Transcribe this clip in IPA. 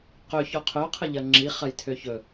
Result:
qɵçɔ qʰœqʰəʎɐ ŋ͡ǁiχɐjtʰø çɵ

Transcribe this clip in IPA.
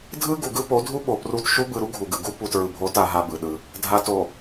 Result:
dʱɯ˦ ɡu˨ɡɯ˦po˨˦ dʱu˦ɓo˨pru˦˨t ʃu˦bɯ˨ɾu˦ ɡʱu˨ɡɯ˨ ɡu˦ pu˨tɹɯ˨bʱo˨˦ta˨ ɦa˦bɯ˨ɗɯ˦ | dʱa˨to˨

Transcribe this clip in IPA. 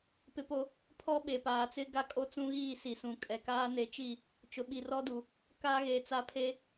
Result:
pɪ˦po˦ | pʰɔ˦ɓe˨paː˨t͡sɪ˦ ɡa˦kʼo˦ t͡sũ˦ɣiː˦˨ si˨sũ˨ kʼɛ˨kaː˦ ne˨˦t͡ʃi˦˨ | t͡ʃʊ˨ɓi˨rɔ˦du˨ | ka˦ɣe˨ t͡sa˦ pʰe˦

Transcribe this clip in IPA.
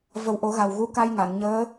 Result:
və˨˩wʔo˨˩˦ ɣa˨˩wɣu˧˥ka˧jŋa˨˩˨n ɲəː˧˥

